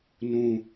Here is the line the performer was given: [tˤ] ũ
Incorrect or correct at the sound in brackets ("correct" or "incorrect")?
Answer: incorrect